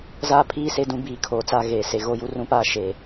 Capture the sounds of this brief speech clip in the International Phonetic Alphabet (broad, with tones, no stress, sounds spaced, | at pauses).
z aː˦ pʰ iː˦ s e˦ d ũ˦ b iː˨ kʰ oː˨ t͡s a˦˨ ɣ eː˨ s e˨ ɣ o˦ j u˦ r ũ˦ p aː˦ ʃ eː˨